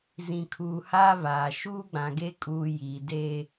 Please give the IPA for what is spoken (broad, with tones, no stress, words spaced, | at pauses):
zĩ˨kʰuː˨haː˦vaː˨ ʃuː˦ɡ͡bã˨ɡe˦ kʼuː˦ ji˨deː˦